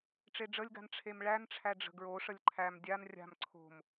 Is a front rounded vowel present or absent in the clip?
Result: absent